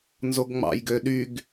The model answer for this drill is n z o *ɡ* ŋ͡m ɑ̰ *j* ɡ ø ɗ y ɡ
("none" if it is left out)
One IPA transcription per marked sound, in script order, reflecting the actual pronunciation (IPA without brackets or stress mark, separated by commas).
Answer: ɡ, j